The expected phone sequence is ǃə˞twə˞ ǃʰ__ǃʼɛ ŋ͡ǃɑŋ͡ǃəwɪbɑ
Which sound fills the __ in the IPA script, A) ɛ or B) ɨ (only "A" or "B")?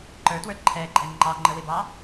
A